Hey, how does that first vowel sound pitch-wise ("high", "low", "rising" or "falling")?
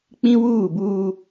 high